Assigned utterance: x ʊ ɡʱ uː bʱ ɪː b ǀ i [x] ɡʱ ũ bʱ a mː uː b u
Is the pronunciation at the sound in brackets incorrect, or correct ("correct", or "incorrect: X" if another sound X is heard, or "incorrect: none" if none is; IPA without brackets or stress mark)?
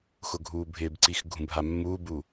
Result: correct